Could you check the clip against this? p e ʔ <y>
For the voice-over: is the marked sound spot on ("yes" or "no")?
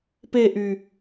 yes